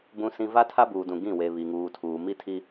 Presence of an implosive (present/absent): absent